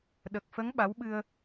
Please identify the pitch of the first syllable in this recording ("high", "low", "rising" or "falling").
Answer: low